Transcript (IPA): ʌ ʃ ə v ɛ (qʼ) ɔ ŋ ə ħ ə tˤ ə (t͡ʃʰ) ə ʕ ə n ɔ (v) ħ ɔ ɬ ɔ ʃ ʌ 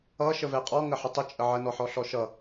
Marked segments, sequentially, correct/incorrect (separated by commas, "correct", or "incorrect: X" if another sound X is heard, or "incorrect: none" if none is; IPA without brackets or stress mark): correct, incorrect: t͡ʃʼ, incorrect: none